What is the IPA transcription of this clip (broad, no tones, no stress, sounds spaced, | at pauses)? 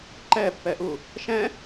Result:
ǃ ɛ pː ɛ ʔ u | ʃ ɛ̃